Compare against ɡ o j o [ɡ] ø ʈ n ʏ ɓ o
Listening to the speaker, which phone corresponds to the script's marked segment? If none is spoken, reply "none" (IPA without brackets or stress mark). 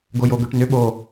ɡ